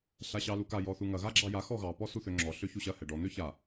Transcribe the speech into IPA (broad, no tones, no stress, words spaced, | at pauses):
ɬaɕɑluka jɔθuŋɐ ɣaɡ͡ǁɑja xɔɣɑ pɔsuθøŋ͡ǁɔ ɬøçuɕɐ hɛɖɔ n̪øça